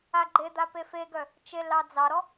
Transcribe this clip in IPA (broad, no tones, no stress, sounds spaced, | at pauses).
a ɡ͡ǃ e d̪ a p e f e ɡ œ | t͡ʃ e l ɑ d͡z ɑ ɾ ɔ